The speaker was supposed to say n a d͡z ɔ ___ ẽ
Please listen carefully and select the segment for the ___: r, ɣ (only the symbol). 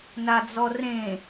r